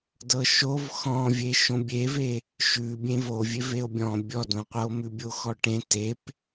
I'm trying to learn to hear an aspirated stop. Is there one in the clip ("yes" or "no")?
no